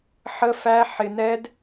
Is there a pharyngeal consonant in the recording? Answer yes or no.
yes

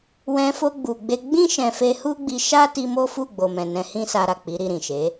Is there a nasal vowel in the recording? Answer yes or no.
yes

